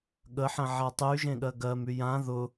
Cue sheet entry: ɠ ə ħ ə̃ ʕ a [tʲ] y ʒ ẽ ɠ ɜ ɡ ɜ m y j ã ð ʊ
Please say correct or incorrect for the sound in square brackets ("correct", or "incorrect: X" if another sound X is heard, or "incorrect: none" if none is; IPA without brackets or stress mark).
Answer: incorrect: tˤ